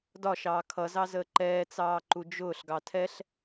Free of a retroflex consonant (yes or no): yes